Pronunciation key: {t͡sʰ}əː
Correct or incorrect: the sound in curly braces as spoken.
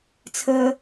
correct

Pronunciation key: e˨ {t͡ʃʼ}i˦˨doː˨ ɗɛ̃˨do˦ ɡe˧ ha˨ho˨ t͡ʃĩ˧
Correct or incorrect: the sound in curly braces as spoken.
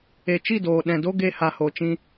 incorrect: t͡ʃ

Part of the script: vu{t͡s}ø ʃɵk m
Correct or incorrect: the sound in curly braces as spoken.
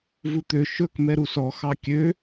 incorrect: t̪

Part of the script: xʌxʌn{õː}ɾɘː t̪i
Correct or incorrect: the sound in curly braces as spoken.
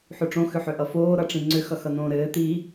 correct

